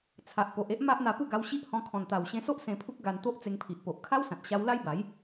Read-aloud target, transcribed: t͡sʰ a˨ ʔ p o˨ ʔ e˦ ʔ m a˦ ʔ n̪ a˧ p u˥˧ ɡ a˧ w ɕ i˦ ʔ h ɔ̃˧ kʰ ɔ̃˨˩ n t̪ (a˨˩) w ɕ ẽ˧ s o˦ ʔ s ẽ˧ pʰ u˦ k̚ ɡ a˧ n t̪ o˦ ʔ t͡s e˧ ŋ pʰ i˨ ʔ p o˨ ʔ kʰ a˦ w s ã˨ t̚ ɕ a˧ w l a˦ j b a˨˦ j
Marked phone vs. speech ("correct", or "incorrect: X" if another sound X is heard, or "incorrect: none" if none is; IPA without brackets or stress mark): correct